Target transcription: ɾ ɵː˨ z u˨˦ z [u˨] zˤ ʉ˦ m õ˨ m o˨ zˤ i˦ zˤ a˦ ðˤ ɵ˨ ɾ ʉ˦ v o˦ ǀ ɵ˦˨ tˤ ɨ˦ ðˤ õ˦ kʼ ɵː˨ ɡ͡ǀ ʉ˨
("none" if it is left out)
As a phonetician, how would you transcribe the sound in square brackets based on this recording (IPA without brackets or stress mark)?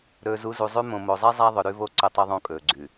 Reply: u˨